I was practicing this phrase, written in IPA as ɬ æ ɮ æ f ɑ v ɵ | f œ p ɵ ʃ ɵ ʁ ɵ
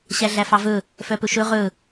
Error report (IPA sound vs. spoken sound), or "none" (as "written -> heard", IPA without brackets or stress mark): ɬ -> ɕ